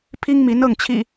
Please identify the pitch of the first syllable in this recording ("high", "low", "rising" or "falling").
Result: high